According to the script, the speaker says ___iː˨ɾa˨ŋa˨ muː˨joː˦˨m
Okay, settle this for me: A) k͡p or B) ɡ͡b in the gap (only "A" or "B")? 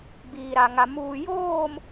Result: B